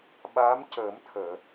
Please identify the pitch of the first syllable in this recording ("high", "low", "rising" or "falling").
rising